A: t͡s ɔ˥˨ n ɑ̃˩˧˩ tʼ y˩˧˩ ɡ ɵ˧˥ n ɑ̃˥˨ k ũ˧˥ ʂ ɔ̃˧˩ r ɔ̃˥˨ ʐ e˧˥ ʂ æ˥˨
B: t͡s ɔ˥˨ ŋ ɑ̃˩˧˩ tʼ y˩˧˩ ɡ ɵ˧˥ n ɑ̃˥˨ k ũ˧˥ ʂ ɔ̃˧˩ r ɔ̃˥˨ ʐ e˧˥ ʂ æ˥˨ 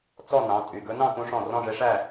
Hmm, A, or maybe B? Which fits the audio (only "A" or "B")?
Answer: A